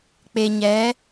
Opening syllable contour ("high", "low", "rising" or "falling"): low